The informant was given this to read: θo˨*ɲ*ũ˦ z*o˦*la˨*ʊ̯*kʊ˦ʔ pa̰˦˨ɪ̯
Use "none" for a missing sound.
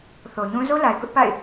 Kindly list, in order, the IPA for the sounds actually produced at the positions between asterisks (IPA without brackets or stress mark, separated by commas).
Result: ɲ, o˦, ɪ̯